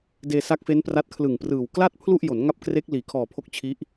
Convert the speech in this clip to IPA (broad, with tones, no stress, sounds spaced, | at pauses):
d eː˧ s a˦˥ k̚ f e˦˥ n p r a˦˥ t̚ kʰ l ɯ˨˩ ŋ p r ɯː˨˩ w k l a˥˩ t̚ pʰ l u˥˩ ʔ j o˩˦ n ŋ a˥˩ p̚ k r e˦˥ k̚ l iː˩˦ kʰ ɔː˨˩ pʰ o˦˥ k̚ t͡ɕʰ i˦˥ ʔ